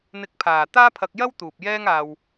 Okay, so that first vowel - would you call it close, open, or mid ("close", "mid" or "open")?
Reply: close